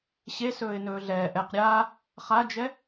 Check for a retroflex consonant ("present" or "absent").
absent